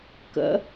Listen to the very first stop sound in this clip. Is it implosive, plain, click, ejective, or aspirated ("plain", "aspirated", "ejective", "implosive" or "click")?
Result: plain